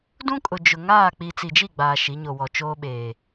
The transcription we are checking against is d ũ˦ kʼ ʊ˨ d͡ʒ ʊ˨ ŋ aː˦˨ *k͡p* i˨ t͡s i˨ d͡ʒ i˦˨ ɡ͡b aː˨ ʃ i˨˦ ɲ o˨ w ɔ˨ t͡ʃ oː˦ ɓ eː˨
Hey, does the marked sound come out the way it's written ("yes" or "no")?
yes